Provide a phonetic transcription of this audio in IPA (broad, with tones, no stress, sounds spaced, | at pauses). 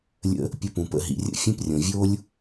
lʲ ə̰˧ | pʲ ə˧ p ũ˩ p ə̰˧ ɦ ḭ˩ rʲ ə̰˥ fʲ ẽ˥ p rʲ õ˩ vʲ o˥ lʲ